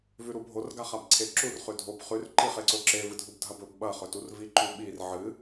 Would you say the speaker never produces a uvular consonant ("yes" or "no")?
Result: no